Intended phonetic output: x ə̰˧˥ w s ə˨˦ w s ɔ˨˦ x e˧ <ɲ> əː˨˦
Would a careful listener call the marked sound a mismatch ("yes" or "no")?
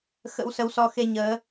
no